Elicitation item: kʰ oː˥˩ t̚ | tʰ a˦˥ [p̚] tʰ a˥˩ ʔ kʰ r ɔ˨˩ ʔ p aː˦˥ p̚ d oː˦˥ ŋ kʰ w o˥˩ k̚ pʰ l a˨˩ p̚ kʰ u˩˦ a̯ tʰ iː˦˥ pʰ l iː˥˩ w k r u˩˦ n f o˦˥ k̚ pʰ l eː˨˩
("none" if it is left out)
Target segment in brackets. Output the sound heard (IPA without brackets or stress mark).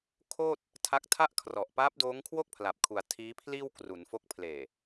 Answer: k̚